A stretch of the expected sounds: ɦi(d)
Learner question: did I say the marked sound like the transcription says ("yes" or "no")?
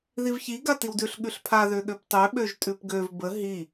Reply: no